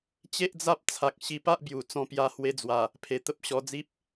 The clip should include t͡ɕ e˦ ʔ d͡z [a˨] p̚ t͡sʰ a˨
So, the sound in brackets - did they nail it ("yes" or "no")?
no